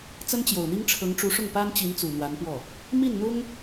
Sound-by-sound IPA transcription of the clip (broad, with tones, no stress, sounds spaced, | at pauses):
t͡s ə˥ n t͡ɕ j o˨˩ ʊ̯ n̪ i˥ ŋ ʈ͡ʂʰ ɤ˧˥ ŋ ʈ͡ʂ u˧˥ ʂ ʊ˥˩ ŋ p a˥ n t͡ɕ i˧˥ n t͡s u˨˩ n̪ w a˧˥ n p w ɔ˥˩ | m i˥˩ n n̪ ʊ˥ ŋ